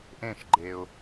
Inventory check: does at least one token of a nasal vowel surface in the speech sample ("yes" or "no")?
yes